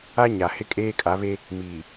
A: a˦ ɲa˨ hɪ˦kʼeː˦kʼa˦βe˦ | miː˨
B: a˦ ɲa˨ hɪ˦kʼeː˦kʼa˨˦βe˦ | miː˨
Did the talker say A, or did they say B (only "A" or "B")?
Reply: B